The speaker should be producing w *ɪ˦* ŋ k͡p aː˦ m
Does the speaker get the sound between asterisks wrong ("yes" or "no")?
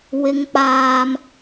no